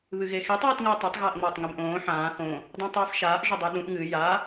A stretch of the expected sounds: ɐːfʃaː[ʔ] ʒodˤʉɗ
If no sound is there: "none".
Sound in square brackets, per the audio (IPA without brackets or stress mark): ʔ